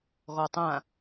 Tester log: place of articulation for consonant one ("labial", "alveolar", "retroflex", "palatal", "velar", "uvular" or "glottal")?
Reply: velar